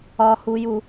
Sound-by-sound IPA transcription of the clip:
ɒ h u j u

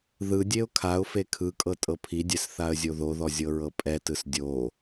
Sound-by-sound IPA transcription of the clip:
ð ɯ dʲ e ʊ̯ kʰ a ʊ̯ f e kʰ ɯ kʼ ɤ tʼ ɤ pʰ i dʲ ɛ s θ a ə̯ zʲ o ð o ð ɔ zʲ ɤ ɹ ɤ pʼ ɛ t ɯ s dʲ o

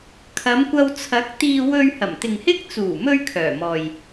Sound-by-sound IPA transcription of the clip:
kʰ ɐ˨˧ m kʷ ɐ˧ w t͡sʰ ɐ˨˥ k̚ t̪ iː˧ w ɵ˧ ɥ h ɐ˨˩ m t̪ ɪ˨ ŋ h ɪ˥ k̚ t͡s uː˨˩ m ɵ˧ ɥ kʰ œː˨˩ m ɔː˨ j

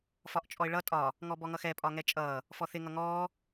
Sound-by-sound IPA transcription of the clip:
f ɒ ʔ t͡ʃʼ ɔ ɪ̯ ɭ ʌ tʼ ɒ | ŋ ɔ b ɔ ŋ ʌ x ɛ pʼ ɒ ŋ ɛ t͡ʃʼ ʌː | f ɔ θ ɪ ŋ ʌ ŋ ɔː

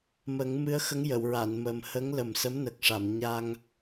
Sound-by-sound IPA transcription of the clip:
m ə˨˩˦ ŋ m ɨ˧˥ ə̯ x ə˧˥ ŋ j ə˨˩˨ w ɹ a˨˩˨ n m ə˨˩ m h ə˧˥ ŋ l ə˨˩ m s ə˧˥ m n ə˨˩ k̚ ʂ a˨˩˨ m ɲ a˧ ŋ

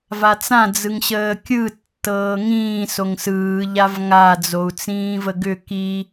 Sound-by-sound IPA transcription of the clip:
v a t͡s ã d͡z ɯ ŋ ɕ əː kʲ ɯ tː ɤː ŋ ĩː s o ŋ s ɯː ʎ a v ŋ a d͡z o u̯ t͡s ĩː v ə ɡ ʏ k i

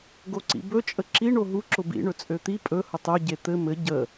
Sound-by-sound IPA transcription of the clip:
ɡ o ǀ ḭ b ɵ t͡ʃʼ ə ǁ i ɳ o ɦ u ǁ ʊ b ḭ ɳ ɵ t͡sʼ ø t̪ i pʼ ɵ h ʊ tˤ ø ɟ e t̪ ɘ m ɘ ɟ ə

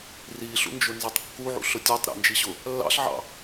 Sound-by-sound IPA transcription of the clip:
r i ɬ ṵ n d͡ʒ ʊ n z ɑ tˤ kː u ʕ ṵ ɬ ʊ tʲ ɔ tˤ ɾ æ̰ n d͡ʒ i ɕ ʊ | lː ɑ̰ ɬ ʕ ɑ̰

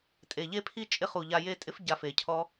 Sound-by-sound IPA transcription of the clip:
tʼ e˨ ʎ e˧ pʰ i˧ t͡ʃʼ ɪ˦˨ χ u˨ ʎ a˧ j e˧ tʼ ɪ˦ f ɟ a˧ f e˨ cʰ ɔ˦

